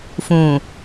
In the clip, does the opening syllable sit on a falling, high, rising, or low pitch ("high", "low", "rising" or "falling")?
low